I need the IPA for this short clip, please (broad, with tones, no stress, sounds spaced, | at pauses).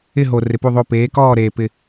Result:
ɪ˦˨ ɦ o˨ r ɪ˨ p u˦˨ ðˤ o˦˨ p eː˨˦ k ɔː˦˨ ɾ eː˨ p ɪ˨